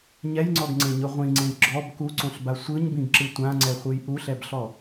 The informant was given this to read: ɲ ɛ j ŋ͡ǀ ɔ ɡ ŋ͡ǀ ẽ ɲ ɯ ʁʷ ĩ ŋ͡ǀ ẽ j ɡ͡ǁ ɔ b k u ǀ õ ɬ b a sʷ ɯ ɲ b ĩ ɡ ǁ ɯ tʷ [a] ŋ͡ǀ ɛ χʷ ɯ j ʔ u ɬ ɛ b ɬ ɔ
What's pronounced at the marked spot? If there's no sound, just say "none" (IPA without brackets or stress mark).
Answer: ã